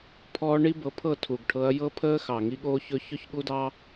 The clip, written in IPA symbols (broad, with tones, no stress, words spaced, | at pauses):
pʰɔː˦ ɳi˦bɤ˨˦pʰɤ˦˨ tʰu˨ɡʈʰɤ˧ɐ̯ jɤ˦pʰəː˦xɑ˨ ŋi˦ɠoː˦çɵ˦ çɵ˦çɠu˦dɑ˦